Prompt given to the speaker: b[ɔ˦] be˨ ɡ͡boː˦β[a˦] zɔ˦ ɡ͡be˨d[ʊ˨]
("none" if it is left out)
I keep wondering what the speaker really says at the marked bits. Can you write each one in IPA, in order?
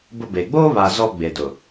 ʊ˦, a˨, ʊ˨

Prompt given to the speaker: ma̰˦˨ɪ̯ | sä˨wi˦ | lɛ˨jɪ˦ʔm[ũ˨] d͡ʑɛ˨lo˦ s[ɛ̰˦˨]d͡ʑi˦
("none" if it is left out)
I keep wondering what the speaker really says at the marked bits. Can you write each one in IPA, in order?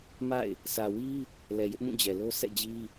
ũ˦˨, ɛ̰˦˨

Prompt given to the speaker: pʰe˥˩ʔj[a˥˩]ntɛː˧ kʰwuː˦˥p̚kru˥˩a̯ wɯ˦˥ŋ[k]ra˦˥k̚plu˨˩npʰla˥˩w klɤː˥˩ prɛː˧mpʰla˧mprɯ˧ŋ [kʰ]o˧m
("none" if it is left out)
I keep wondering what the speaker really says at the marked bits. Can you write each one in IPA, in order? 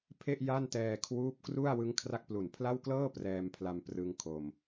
a˥˩, kʰ, kʰ

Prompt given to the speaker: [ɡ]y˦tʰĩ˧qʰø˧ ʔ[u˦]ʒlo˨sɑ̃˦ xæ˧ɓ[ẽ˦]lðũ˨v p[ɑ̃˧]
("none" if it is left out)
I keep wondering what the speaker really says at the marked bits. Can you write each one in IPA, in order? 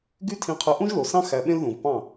ɡ, ũ˦, ẽ˦, ɑ̃˦˨

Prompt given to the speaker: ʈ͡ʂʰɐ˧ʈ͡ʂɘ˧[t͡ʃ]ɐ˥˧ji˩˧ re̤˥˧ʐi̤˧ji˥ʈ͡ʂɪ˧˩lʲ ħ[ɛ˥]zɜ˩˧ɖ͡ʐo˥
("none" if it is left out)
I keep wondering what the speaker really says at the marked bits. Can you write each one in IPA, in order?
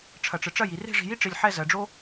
ʈ͡ʂ, ɛ˥˧

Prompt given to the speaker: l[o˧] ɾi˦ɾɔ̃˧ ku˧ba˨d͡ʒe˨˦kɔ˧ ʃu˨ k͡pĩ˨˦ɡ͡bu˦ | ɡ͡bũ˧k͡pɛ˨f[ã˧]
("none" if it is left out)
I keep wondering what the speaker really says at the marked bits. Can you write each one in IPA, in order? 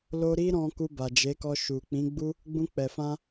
o˧, ã˧

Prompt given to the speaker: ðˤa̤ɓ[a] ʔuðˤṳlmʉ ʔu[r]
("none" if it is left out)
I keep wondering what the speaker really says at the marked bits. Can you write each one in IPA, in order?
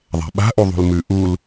a̤, l

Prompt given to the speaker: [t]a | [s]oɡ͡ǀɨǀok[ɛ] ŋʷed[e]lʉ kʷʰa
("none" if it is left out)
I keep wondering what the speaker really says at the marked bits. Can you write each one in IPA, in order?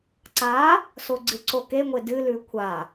ǀ, s, e, ɨ

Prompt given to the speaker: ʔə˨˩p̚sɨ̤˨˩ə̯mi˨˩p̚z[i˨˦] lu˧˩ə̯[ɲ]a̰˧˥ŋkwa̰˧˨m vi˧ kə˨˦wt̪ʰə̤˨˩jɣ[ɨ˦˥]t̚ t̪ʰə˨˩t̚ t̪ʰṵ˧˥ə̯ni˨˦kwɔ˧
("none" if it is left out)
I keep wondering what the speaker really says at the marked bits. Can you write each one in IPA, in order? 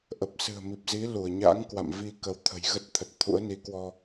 i˨˦, ɲ, ə˦˥

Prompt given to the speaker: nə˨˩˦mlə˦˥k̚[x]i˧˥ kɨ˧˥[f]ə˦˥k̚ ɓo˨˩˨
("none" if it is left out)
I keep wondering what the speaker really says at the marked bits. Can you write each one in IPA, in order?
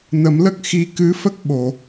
x, f

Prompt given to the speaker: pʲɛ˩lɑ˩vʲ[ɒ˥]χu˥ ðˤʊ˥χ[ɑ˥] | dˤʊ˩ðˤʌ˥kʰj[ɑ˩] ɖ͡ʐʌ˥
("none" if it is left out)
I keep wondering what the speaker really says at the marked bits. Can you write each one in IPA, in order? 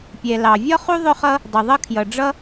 ɒ˥, ʌ˥, ʌ˩

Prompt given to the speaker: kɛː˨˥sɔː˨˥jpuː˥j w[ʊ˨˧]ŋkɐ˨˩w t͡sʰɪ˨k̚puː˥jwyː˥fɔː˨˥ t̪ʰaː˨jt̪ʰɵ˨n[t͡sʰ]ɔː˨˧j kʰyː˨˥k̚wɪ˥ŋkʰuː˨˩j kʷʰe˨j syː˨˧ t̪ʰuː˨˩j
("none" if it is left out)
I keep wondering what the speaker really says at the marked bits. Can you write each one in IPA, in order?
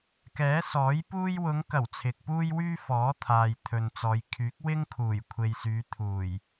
ʊ˨˧, t͡s

